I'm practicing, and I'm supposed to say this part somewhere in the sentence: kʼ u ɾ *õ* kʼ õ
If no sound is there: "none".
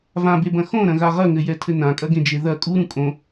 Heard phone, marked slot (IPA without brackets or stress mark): ũ